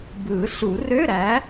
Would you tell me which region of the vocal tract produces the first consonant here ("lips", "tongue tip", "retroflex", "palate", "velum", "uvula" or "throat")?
lips